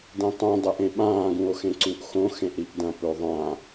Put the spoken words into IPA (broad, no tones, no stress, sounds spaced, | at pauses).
d ẽ tˤ ũ dˤ e ʔ ẽ ɓ ãː ɡ ũ o̯ x ẽ ǀ u ʔ x õ x ẽ ʔ ɾ i ʔ d ɐ̃ p ɵ o̯ ðˤ ã